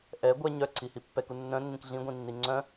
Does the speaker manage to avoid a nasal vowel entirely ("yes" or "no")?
no